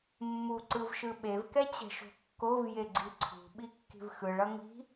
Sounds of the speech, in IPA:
mː u ǀ ɯ v ʃ ɯ ɓ e v k ɛ t͡ɕ ɛ̤ ʃ o̤ kː o v j e ɡ͡ǀ i ǀʰ ṳ ɓ i kː i̤ v x ɯ ɭ ʌ ŋ i̤

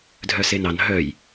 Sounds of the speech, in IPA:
dʱ œ s e n ɑ n ɦ œ j

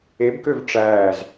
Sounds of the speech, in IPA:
e b k ø v ʈ͡ʂ æː z

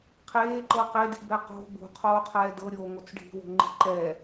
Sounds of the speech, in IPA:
qʰ eː ǃ ɤ q e d i̤ b ɛ q o̤ b ṳ qʰ oː qʰ ɛː d ɤ ɾʲ oː ŋ o t͡s ɖʱ i̤ w o̤ ŋ͡ǃ i̤ ǃ ɛ

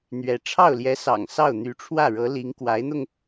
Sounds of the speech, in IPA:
n̪ ɥ ɛ˧˥ ʈ͡ʂʰ ɑ˥˩ ʊ̯ l j ɛ˧˥ s ɑ̰˨˩ ŋ s ɑ˥˩ ʊ̯ n̪ y˧˥ ʈ͡ʂʰ w ä˥˩ ɻ ɤ˧˥ l i˧˥ ŋ k w a˧˥ ɪ̯ n̪ ʊ˧ ŋ

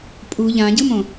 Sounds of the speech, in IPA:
pʼ u ʎ ã ɟ ɯ m õ

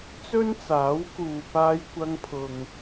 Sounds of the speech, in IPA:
t͡s ɵ˥ n t͡s aː˨˥ w k uː˨ p aː˧ j kʷ ɐ˧ ŋ pʰ ʊ˨ ŋ

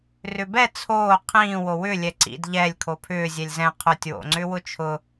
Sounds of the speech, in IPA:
r ʏ b ɛ t͡sʰ oː qʰ ĩː w o w ʏ lʲ ɛ ǀ ḭ d ʎ ɛ lʲ kʰ o pʰ ʏː zʲ ɛ lʲ z ɛ̃ qʰ ʊ tʲ w o̰ ŋ͡ǀ ʏ w ʊ t͡ʃʰ ʊ

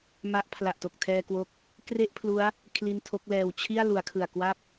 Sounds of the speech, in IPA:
m a˥˩ ʔ pʰ l a˨˩ ʔ t o˨˩ k̚ tʰ ɛː˧ k w o˦˥ k̚ | k r e˥˩ ʔ pʰ l u˦˥ a̯ | kʰ l i˧ n tʰ o˦˥ k̚ l ɛː˧ w t͡ɕʰ i˥˩ a̯ l u˩˦ a̯ kʰ ɯ˨˩ a̯ k w a˥˩ p̚

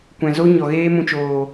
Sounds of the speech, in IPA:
kʷ ɛ̃˨ z o˦ ɲ ɔ˨ ɣ eː˦ m ũ˧ t͡ʃ oː˨

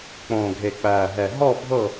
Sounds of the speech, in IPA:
k͡p õː˨˩ ɡʱ e˨˩ k͡p æː˨˩ ɦ ɛ˨˩ ɦ ɔ˦˨ bʱ ɤ˦˨

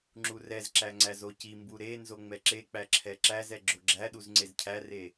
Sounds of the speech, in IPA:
ŋ͡ǁ u r ɛ z ǁ æ ŋ͡ǀ æ z o c i m b u ɾ e n z o ŋ͡m ɛ ǁ e k͡p æ ǁʰ ɛ ǁ æ z ɛ ɡ͡ǁ o ɡ͡ǁ æ ɗ u z ŋ͡ǀ e z cʰ æ r e

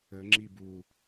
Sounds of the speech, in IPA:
ə ŋ͡ǁ i b u

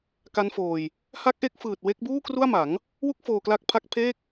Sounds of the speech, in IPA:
k a˦˥ n f oː˧ j | h a˦˥ k̚ ʔ e˦˥ k̚ f ɯː˨˩ t̚ w e˦˥ k̚ b uː˥˩ k r u˥˩ a̯ m a˩˦ ŋ | w u˥˩ k̚ f oː˧ k l a˦˥ k̚ pʰ a˦˥ k̚ pʰ eː˥˩ k̚

